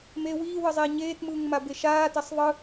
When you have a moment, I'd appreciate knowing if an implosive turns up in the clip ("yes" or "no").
no